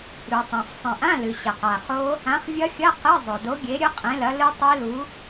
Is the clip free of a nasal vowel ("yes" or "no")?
no